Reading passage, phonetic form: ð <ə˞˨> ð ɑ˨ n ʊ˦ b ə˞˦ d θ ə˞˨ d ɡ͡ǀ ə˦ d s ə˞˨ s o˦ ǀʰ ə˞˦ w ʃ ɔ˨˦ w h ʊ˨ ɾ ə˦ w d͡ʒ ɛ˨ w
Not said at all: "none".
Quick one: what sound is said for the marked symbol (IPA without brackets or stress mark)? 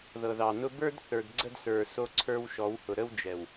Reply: ɤ˨